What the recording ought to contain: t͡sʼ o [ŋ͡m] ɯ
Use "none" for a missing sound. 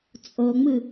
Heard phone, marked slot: ŋ͡m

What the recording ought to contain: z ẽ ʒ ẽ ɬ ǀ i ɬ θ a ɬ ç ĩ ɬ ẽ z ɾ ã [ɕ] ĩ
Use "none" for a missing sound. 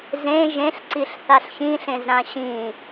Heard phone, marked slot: ɕ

